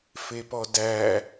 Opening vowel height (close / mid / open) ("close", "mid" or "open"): mid